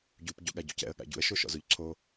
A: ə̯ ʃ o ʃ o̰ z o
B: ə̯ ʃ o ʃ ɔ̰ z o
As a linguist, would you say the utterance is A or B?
B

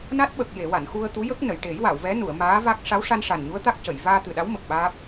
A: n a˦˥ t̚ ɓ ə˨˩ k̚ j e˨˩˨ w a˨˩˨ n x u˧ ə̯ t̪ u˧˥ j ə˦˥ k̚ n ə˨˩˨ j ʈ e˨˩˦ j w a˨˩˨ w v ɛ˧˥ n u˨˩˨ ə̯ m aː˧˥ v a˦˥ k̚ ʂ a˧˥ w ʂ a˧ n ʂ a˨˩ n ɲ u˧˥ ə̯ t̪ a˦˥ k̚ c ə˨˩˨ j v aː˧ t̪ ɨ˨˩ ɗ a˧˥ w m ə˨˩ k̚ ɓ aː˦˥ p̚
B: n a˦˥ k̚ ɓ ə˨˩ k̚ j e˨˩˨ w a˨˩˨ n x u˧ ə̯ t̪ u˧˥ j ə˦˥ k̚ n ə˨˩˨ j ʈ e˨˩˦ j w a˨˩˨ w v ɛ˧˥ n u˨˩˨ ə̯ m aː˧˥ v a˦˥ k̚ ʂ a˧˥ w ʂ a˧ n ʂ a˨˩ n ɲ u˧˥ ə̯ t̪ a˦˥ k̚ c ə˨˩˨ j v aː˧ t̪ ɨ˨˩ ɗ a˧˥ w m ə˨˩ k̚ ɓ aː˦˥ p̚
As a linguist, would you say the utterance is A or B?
A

